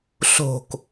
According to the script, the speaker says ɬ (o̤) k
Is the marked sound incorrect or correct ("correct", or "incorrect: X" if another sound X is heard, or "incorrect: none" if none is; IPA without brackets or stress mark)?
correct